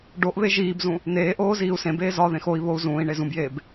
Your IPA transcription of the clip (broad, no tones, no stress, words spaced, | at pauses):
ɖoʔβe ʒiːbzũ | neːʔoː ziːu̯sẽbeː zɒðẽx oi̯ βou̯zũːi̯ɳe zũbjeːb